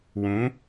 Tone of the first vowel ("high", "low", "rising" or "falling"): rising